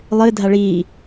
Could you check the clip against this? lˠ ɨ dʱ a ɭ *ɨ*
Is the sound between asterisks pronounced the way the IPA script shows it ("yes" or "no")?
no